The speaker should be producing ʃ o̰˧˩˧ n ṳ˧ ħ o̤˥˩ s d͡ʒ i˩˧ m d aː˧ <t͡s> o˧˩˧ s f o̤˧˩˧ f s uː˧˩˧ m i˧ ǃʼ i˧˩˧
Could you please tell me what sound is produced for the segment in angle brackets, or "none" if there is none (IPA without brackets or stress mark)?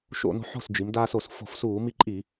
s